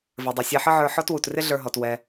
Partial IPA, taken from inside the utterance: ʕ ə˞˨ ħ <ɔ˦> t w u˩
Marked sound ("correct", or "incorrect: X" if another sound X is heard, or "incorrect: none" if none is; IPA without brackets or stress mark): correct